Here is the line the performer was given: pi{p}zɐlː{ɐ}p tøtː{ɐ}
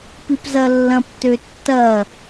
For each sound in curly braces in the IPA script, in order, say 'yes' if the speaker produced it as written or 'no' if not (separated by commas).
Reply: yes, no, yes